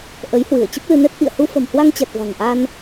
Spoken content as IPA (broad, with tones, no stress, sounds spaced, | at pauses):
ʔ ə˨˦ j h w ɨ˧˩ ə̯ t͡ɕ ə˦˥ p̚ l ɨ˧ n ɛ˦˥ t̚ ʔ ḭ˧˨ ə̯ h u˧ f ə̤˨˩ m h w a˧ ŋ t͡ɕ a˨˩ t̚ v a̤˨˩ ŋ ʔ a˧ n